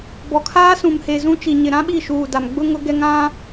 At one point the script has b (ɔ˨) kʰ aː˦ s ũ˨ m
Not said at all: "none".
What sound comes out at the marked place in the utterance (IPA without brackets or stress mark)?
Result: ɔ˨